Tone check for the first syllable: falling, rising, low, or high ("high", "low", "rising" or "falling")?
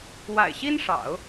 low